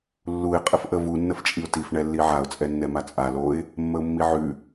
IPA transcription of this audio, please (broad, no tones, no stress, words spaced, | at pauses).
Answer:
lːuɪ̯ qʼəfʔəvu nːəft͡ʃʼiʊ̯tif ɳɛlːiʕaʊ̯ t͡sʼɛnːɛmat͡sʼa loɪ̯ | mːəʊ̯mːiʕʉ